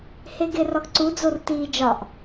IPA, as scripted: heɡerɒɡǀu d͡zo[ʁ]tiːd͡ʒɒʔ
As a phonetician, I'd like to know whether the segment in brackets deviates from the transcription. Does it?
yes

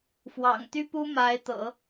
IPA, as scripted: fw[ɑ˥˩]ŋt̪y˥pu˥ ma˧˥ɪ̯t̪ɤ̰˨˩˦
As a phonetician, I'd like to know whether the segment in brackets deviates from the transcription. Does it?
yes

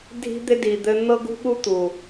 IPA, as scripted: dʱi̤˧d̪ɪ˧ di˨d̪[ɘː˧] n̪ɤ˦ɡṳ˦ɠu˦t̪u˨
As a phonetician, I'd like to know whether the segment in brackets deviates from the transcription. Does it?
yes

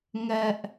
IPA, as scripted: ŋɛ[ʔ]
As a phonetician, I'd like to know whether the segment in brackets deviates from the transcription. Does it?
no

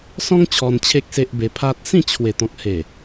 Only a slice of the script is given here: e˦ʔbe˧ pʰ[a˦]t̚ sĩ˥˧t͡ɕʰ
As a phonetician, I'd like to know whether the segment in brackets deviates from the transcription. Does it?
no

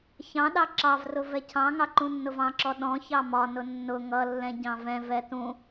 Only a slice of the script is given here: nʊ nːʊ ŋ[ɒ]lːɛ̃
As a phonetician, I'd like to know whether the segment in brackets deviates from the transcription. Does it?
yes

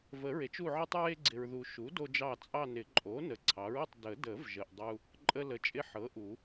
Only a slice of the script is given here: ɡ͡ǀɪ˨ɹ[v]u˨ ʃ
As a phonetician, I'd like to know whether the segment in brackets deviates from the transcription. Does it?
yes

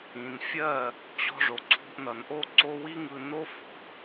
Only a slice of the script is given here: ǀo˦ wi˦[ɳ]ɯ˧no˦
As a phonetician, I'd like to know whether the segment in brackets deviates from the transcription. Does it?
yes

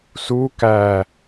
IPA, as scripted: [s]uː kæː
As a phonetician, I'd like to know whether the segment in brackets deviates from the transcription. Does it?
no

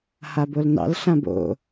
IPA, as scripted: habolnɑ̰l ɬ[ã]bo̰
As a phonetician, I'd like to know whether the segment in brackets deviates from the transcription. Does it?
no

